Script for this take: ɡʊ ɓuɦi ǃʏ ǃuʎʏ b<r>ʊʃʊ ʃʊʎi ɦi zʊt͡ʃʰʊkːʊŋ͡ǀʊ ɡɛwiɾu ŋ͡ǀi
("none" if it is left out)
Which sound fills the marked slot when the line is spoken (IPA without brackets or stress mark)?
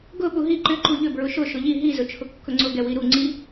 ɹ